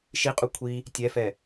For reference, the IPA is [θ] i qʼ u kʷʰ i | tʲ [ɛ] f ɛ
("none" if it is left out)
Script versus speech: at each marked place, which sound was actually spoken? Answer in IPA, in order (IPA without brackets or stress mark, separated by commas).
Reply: ʃ, ɛ